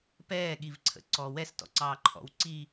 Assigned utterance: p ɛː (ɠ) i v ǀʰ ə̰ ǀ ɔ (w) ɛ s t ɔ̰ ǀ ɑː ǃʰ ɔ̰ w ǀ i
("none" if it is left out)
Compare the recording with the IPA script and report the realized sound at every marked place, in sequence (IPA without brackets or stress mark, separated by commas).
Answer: ɠ, w